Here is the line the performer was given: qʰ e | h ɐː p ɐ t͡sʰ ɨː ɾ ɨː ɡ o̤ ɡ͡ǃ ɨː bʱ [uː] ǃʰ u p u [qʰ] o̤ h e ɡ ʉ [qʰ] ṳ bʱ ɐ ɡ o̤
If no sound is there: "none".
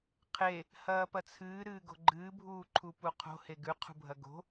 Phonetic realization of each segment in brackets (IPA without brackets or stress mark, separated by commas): uː, qʰ, qʰ